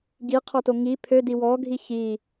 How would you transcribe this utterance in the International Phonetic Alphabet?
ɟ i qʰ ɔ t o ŋ i pʰ ø d i w ɔ ɡʱ i ç i

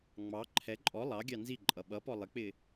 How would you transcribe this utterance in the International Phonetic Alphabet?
ŋ͡m ɑ ǃʰ ɛ ǃʼ ɔ lˠ ɑ ɡʲ ɑ n z i ǃʼ ʌ ɓ ʌ p ɔ lˠ ɪ k͡p ɪ

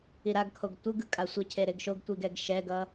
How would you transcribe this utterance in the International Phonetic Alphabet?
i ɾ a ɡ kʰ o ɡ tʷ ɯ ɡ ɯ kʼ a sʷ ʌ cʰ e ɾ e ɡ ʃ o ɡ tʷ i ɡ ɛ ɡ ʃ ɛ ɡ ʌ

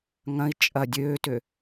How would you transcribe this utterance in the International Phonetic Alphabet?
ŋ ɐ̃ i̯ t͡ʃʼ ɐ dʲ øː t ø

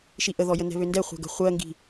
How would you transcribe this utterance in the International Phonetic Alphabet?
ʃ i ʔ ə ð ɔ j ə n ɛ̤ β ø n d ɛ χʷ ɛ̤ ɡ ə̤ χʷ ɜ ŋ ɡ i̤

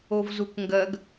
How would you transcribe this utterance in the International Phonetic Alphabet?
o v z u k ŋ ɡ ɜ ɡ

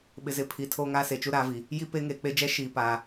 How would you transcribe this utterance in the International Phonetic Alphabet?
ɓ ɪ˨ z ɪ˨˦ pʰ i˨ tʰ oː˦ ŋ aː˦ s e˨ t͡ʃ u˦ ɾ aː˦ v i˨ | j i˦ p e˦ ŋ eː˨ k͡p e˦ d͡ʒ ɛ˦ ʃ iː˨ p aː˨

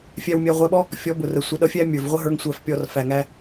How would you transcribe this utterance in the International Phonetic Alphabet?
fʲ æ˧ w mʲ æ˧ ʁʷ æ˧ ɓ ɔ˦ | fʲ ɔ˨˦ b ʊ˨ r ə˨ sʷ ʌ˨˦ ɗ ʌ˧ fʲ æ˦ mʲ ə˞˨ v ʁʷ ə˦ ɦ ə˞˧ ŋ sʷ æ˧ f pʲ ɔ˧ r f æ˨ ŋ æ˧

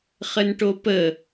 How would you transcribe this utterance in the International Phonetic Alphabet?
χ ə n ʈ o p ə

